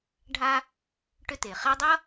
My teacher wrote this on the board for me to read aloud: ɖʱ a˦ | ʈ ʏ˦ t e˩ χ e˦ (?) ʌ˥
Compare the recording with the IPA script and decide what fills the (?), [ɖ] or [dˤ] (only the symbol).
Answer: dˤ